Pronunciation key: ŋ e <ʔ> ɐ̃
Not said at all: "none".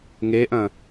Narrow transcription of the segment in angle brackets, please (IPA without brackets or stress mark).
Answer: ʔ